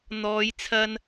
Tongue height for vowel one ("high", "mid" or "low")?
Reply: mid